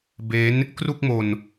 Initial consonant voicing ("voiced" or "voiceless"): voiced